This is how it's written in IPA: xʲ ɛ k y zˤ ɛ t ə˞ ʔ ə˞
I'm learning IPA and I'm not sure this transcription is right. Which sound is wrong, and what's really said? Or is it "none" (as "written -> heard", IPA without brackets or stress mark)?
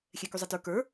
ʔ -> k